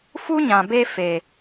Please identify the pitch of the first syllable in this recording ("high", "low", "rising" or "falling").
high